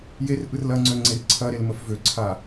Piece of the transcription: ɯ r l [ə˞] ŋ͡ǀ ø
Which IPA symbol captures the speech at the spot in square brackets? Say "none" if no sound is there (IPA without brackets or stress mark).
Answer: ɐ